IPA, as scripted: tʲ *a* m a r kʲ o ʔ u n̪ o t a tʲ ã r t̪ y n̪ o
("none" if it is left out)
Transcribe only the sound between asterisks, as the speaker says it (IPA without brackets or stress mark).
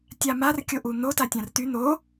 a